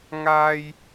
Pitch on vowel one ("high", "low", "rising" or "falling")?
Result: high